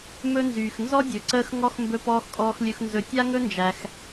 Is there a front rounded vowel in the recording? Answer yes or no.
yes